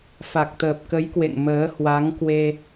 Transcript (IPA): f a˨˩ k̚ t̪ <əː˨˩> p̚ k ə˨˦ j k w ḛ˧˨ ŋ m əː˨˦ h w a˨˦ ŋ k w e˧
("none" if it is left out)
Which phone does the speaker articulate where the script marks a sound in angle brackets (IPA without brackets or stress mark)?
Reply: əː˨˩